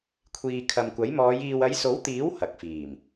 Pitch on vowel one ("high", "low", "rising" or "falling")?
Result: low